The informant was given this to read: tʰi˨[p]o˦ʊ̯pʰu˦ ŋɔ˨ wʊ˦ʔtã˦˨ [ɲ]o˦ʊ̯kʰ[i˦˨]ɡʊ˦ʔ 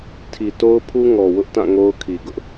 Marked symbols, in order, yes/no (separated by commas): no, no, no